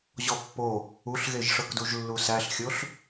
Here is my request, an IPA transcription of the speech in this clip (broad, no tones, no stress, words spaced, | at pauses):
ʑɔpːo | uɬɣeʒʂɤkduʒ lːusæɬxʲoɬ